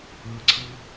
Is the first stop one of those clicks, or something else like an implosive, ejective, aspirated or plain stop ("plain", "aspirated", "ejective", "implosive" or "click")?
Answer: click